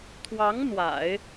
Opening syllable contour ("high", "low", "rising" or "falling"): rising